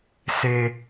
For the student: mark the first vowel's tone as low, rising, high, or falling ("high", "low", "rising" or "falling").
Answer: high